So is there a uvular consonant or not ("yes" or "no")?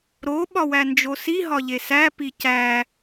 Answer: no